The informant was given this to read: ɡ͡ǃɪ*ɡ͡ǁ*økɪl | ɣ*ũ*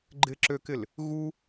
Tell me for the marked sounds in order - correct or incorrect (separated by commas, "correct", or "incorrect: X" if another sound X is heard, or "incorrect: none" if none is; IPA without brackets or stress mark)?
incorrect: ǁ, incorrect: u